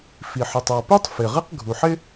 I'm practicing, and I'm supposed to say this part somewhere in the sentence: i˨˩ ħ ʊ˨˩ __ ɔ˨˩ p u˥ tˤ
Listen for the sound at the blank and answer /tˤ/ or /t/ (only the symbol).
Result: tˤ